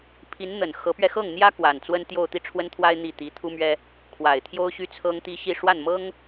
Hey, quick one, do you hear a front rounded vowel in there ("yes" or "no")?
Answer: yes